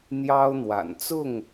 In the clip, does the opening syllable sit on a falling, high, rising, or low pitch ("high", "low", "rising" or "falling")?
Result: high